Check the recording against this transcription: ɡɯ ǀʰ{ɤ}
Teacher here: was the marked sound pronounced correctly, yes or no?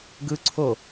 no